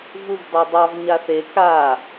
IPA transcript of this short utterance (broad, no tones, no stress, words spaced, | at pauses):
vuvdˤɑdˤɑv ɲaθe ka